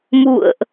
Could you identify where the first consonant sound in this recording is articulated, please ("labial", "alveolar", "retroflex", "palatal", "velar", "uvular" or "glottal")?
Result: labial